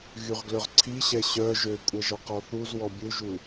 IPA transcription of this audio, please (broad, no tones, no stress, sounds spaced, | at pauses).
ɣ y ʁ ɡ l ø ʁ ǀʰ i ɕ ɛ ɕ œ ʒ ø kʷʼ ə ʒ ɔ q ɔ θ u z w ɔ bʲ u ʒ u